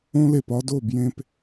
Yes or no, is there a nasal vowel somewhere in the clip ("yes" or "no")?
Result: yes